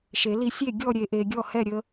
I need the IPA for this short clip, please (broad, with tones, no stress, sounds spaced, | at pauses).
ʃ e˩˧ l i˨˥ sʲ e˥˩ ɡʲ ɔ˥˩ ɾʲ e˩˧ ʔ e˩˧ ɡʲ ɔ˥˩ h ɛ˥˩ ɾʲ ə˨˥